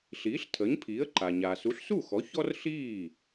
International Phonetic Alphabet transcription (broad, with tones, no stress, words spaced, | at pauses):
ɬiː˩˥ɬtʰəː˩˥ɲpʰiː˩˥ə̯ǃa˩ ɲa˩su˩˥ɬsu˥˩xɔ˩˥ çɔ˥rɬiː˥˩